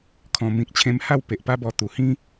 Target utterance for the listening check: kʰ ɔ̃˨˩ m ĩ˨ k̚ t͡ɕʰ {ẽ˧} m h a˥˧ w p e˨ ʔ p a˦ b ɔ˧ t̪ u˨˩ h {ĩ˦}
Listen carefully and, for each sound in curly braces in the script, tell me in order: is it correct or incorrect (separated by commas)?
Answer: correct, correct